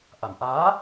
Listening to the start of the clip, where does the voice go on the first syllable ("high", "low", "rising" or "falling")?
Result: low